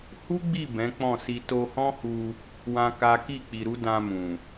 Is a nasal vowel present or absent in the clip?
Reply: present